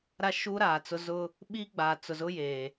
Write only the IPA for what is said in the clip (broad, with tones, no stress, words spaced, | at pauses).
ɾa˦ʃuː˦ ɾaː˨t͡sʊ˦ zʊ˦ | ɓi˦ɡ͡baː˨t͡sʊ˨zʊ˦ jeː˨